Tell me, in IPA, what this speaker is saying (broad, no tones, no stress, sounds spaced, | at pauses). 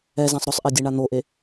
ɛ z ã sˤ ɾ ʊ sˤ ʔ e dʲ e ɳ a n̪ o ʔ e